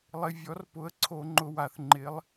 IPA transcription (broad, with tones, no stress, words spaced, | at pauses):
lˠɪ˩˧˩vʲɔ˩˥rpʊ˩˧˩ə̯ǀʰo˧˩˧ ŋ͡ǃʊ˩˧˩wa˩θŋ͡ǃɪ˩˥lˠ